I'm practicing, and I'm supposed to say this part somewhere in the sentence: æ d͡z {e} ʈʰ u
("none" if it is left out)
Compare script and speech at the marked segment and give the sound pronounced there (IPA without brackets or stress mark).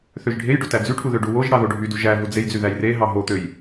y